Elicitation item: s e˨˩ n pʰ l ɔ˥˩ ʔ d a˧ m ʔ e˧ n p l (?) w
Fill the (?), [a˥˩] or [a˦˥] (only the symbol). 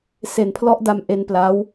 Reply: a˦˥